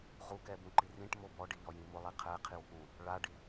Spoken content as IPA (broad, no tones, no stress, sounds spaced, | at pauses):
ʁ u k ɛ b ũ ǃ i r ĩ ʈ m o b ɔ ɖ i ʎ ɔ j ĩ m ʊ lˠ i qʰ ɛ qʰ i w k ũ | ɭ a ɖ i